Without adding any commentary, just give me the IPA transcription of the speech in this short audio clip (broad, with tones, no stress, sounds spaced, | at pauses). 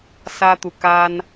s ä˥ t̪ u˨ k a˥ n